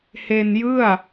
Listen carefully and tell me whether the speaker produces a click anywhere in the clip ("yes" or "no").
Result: no